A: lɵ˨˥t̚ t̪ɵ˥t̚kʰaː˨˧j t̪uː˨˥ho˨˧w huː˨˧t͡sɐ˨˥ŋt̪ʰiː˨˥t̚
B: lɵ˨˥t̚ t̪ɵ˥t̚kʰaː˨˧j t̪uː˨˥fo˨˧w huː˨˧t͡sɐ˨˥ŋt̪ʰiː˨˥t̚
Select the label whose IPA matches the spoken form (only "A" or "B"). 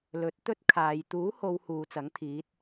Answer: A